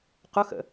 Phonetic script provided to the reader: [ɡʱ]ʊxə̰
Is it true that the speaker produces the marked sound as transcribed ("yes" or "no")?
no